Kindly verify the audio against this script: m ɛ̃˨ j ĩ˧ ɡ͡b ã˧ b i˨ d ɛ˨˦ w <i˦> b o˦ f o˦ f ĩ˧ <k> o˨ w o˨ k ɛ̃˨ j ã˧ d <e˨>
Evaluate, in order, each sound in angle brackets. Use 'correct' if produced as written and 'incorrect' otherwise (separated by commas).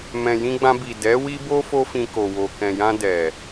correct, correct, incorrect